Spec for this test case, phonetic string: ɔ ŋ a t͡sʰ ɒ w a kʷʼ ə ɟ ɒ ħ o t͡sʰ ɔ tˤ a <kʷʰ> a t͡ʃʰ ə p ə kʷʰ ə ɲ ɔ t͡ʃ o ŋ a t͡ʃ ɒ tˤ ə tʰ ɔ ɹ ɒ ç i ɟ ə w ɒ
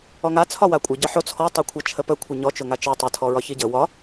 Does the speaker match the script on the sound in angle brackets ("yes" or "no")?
yes